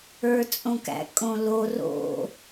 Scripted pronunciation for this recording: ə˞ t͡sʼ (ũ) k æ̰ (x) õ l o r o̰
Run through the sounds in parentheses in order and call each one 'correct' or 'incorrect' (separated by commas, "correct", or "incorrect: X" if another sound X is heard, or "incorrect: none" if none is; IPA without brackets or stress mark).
incorrect: õ, incorrect: kʼ